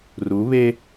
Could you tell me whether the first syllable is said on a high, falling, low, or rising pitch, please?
rising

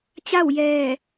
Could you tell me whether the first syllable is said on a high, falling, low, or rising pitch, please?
falling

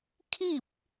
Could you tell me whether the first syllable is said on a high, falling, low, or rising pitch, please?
falling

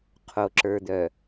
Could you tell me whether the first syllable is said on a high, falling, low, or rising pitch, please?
low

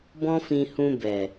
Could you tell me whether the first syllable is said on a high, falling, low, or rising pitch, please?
high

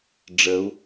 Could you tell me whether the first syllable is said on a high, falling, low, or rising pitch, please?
rising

